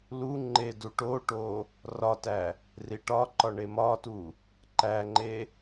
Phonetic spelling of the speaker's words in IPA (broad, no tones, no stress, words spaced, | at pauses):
luŋ͡ǃe duʈoʈo | rɒtæ | riʈɒǃɒ ɳemɒtu | ǃæŋ͡ǃe